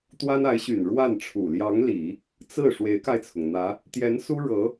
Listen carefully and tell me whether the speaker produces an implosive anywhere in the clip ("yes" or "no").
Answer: no